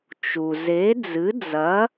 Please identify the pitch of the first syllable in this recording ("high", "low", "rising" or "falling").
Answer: low